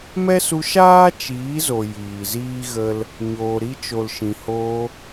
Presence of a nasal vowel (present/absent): present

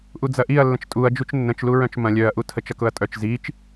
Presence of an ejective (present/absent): present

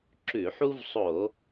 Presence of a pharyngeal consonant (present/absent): present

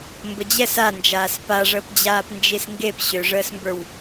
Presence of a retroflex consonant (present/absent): present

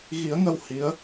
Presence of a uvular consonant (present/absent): absent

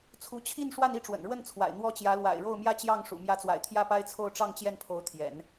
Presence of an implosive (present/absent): absent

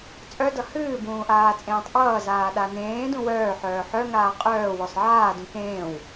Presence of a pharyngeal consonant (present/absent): present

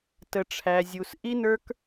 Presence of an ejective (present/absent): absent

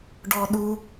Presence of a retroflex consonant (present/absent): present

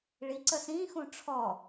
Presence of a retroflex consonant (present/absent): present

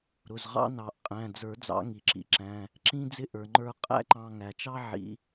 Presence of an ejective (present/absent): present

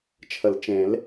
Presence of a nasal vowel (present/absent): present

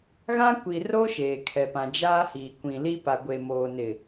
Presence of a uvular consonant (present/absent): absent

